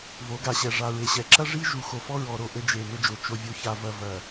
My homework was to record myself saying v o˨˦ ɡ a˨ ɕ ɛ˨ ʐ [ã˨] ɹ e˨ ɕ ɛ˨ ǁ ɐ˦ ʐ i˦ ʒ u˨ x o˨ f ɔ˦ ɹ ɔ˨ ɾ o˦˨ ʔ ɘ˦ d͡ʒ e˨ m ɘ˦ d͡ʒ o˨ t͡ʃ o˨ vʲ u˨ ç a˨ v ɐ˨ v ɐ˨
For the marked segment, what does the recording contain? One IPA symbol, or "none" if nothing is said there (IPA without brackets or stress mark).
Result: a˨